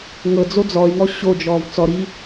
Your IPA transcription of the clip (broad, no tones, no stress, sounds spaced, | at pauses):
ŋ ɤ d͡z o d͡z ɔ y̯ ŋ ɔ ɕ o d͡ʒ ɔː v t͡s ɔ ɾ i